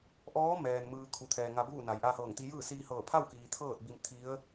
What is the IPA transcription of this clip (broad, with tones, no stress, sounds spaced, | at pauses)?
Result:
ʔ ɔː˧˥ m ɛː˩ n m ɯː˧ kʰ u˩ t̪ʰ ɛː˩ ŋ a˧ b uː˥˨ n a˩˧ j ʔ aː˧ h ɤː˧˩ ŋ t̪ i˧ j ɯː˥˨ s iː˧ h ɤː˧˩ pʰ a˥˨ w k iː˩ t̪ʰ ɤː˥˨ t̚ b i˧ m t̪ʰ i˧˥ ə̯